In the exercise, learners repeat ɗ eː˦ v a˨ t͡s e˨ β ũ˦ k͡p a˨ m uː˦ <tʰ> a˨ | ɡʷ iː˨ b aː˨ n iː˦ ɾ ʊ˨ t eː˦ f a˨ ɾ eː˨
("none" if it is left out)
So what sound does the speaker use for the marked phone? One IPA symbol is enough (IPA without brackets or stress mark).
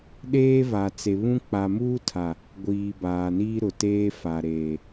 tʰ